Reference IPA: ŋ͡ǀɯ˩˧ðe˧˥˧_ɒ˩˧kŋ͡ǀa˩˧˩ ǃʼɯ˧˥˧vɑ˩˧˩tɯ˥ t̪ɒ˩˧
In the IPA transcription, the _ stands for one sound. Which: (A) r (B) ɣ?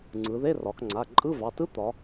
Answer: A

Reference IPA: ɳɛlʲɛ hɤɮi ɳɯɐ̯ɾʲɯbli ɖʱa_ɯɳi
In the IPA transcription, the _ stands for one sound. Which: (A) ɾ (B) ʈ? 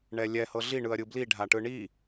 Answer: B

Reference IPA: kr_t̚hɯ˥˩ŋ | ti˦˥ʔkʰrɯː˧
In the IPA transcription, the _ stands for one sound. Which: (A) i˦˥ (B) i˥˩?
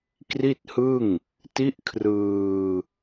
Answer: B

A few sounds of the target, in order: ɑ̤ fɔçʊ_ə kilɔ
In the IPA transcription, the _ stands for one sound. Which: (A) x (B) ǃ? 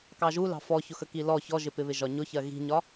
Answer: A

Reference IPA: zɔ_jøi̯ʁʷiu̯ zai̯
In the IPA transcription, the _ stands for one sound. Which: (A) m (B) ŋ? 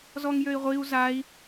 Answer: B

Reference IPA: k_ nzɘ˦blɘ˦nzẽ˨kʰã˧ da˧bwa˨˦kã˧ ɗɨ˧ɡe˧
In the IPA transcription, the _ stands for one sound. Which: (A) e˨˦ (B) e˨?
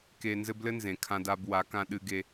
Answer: B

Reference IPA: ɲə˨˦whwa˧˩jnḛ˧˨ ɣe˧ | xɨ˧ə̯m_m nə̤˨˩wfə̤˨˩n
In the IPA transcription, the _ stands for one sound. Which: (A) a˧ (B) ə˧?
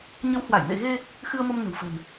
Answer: B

